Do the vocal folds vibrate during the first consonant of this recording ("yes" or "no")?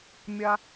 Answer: yes